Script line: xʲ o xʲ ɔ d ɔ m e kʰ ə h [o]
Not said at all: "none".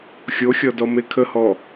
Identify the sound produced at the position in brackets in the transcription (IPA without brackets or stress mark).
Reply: ɔ